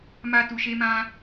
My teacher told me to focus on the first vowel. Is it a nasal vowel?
no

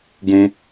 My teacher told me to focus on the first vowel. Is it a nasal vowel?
yes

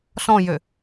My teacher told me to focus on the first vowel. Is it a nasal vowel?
yes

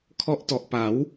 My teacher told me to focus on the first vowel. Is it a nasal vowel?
no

